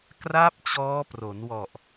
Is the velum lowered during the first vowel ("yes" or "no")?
no